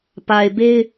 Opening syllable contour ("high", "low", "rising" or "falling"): low